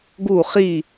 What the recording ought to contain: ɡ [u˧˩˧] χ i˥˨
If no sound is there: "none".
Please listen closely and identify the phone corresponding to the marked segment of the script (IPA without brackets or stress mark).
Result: u˥˨